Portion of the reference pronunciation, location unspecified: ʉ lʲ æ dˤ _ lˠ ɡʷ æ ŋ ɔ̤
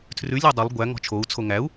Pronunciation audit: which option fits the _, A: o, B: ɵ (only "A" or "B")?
B